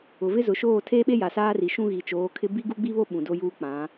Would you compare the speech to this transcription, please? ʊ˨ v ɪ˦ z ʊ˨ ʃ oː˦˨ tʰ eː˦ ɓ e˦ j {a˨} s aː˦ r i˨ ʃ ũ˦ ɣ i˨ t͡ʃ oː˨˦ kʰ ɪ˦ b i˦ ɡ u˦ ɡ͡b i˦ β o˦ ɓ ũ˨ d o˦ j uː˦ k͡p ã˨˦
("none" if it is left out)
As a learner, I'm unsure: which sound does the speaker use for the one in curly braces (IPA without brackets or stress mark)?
a˨